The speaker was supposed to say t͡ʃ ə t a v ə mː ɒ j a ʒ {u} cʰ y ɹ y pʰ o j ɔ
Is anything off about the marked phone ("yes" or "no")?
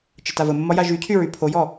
yes